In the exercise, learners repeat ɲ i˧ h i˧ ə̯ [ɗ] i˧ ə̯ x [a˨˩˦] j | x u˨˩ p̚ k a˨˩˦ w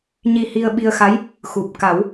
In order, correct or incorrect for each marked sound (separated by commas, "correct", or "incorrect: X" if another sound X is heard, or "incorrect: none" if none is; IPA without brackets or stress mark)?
incorrect: ɓ, incorrect: a˧˥